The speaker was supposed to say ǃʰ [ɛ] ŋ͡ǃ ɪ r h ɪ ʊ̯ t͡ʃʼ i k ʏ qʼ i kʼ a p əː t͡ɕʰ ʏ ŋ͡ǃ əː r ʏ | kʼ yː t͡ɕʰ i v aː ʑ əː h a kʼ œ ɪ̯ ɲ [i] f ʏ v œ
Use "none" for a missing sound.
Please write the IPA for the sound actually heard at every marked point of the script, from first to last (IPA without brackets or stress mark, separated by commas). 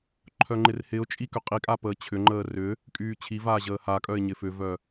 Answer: œ, ɪ